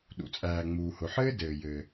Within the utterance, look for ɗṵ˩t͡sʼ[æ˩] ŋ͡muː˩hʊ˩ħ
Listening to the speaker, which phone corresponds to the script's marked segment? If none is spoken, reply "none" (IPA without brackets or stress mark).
æː˩